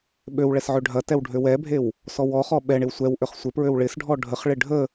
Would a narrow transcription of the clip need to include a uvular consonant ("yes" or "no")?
yes